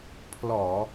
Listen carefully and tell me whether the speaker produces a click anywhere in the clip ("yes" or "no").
no